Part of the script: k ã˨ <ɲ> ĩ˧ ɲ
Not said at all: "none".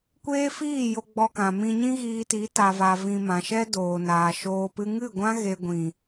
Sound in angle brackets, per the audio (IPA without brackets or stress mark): m